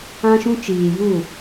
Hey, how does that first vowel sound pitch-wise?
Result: high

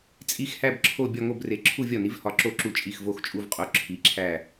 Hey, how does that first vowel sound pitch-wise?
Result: falling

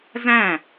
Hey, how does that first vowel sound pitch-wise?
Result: falling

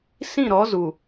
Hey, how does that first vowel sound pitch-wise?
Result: falling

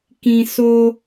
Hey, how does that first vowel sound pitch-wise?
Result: high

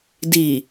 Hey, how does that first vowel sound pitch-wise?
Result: low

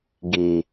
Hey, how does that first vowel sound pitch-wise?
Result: low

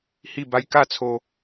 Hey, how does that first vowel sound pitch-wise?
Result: falling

